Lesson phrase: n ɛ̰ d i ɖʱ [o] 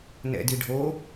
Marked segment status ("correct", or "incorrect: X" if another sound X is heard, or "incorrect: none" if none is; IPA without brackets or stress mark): correct